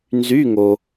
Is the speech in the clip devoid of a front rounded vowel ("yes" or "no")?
no